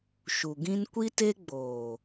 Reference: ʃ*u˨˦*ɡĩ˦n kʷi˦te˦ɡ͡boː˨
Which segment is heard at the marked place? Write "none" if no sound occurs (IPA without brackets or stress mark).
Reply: u˨